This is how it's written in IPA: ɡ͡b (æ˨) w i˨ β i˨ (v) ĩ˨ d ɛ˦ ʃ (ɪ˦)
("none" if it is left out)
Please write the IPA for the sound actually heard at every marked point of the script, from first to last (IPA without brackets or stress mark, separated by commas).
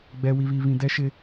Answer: ɛ˨, β, ɪ˦